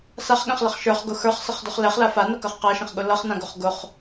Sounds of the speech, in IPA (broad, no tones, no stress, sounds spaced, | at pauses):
s a χ ɠ ɛ̃ χ l ʌ χ ʃ ə˞ χ ɡ ʊ x ə˞ χ s ə χ d ʊ χ l ɛ χ l a f a n ɐ k ɐ χ q a ʃ ə̃ χ ɠ ʊ l ʌ χ n ã ɡ ʊ χ ɡ ʊ χ